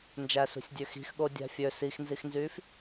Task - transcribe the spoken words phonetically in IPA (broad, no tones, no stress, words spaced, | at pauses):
nd͡ʒæsṳsʲdʲø xi̤xɠo dʲæ̤fʲø sixnzixnzyːf